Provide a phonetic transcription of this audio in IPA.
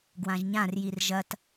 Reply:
ɡ w ã ʒ ɲ ã r j i r ʒ ɐ t

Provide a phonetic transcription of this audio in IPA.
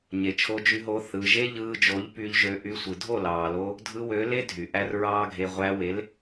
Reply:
ɲ e˨ t͡ʃʰ o˧ d͡ʒ y˧ ɦ o˧ θ ɯ˨ ʒ e˦ ʎ ɯː˧ d͡ʒ o˨˦ ʎ p y˧ ʎ ʒ ø˧ ʔ y˧ sʷ ɯ˨ dʱ o˦˨ l ɑː˨ l o˧ | dʱ ɯ˧ w ø˨˦ l e˦ dʱ y˨ ʔ æ˦ r ɹ ɑː˦ ɡʱ e˧ ʁʷ æ˧ w e˨˦ l

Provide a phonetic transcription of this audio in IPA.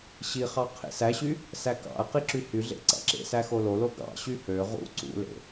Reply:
ɕ i χ ɑ qʰ ḛ s æ ɕ y | s æ k ɑ̰ ɐ̯ q i ǁ y h y ɮ ḛ ǀ ɑ̰ ǁ ḛ s æ x o l o l o ɡ ɑ̰ ɕ y h ø ʁ ṵ ǀ ṵ l ḛ

